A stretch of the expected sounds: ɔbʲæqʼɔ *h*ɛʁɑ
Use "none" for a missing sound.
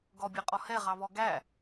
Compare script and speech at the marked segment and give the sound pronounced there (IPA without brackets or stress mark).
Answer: h